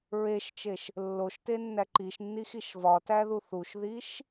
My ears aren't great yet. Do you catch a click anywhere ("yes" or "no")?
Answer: yes